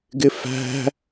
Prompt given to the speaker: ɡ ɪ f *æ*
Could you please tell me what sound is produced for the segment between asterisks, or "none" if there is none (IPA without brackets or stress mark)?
æ̤